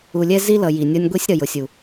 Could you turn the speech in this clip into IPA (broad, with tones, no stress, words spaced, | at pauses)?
u˨lʲɛ˦ zi˦lʌ˨ ji˨nʲɒ˦nʲ ɡʷi˦sʲɾʌ˨jʊ˨sʲu˨